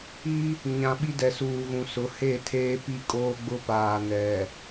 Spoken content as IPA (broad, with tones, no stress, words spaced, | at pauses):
i˦ | ɲã˨ɓi˦ dɛ˨suː˨ɣũ˨sʊ˨˦ he˦˨tʰeː˦pi˦ kʼoː˦ɡ͡bʊ˦paː˨ nɛ˨